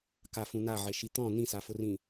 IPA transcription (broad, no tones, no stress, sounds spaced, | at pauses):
k a f ũ n a ʕ e ʃ i t̪ ɔ̃ n ĩ s a f ʊ r ĩ